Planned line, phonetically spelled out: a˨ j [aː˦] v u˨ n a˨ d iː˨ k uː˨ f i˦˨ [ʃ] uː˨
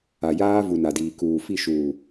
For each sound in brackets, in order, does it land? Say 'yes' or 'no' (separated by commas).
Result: yes, yes